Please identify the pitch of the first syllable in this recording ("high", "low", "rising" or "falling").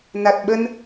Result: low